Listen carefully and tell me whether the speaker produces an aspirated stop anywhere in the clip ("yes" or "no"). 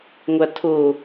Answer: yes